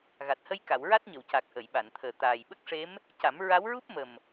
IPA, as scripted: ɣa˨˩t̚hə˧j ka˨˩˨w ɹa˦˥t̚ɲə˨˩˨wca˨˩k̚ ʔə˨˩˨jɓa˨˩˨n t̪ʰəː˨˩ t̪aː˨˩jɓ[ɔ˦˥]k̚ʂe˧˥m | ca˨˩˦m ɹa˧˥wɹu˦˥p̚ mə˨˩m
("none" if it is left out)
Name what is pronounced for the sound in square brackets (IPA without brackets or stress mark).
ə˦˥